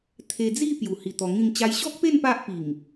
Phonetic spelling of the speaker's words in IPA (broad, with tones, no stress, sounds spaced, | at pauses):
t̪ʰ e˧ d͡z i˥˧ p j u˨˩ h i˨˩ t̪ ɔ˧ ŋ ĩ˥˧ ŋ t͡ɕ a˧ j ɕ ɔ˦ k̚ p e˥˧ n p a˦ ʔ p i˨˩ ŋ